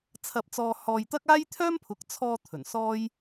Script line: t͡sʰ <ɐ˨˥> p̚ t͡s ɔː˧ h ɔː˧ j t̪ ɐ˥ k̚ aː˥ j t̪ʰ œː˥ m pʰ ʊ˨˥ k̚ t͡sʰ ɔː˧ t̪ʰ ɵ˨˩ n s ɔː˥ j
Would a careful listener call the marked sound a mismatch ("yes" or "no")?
yes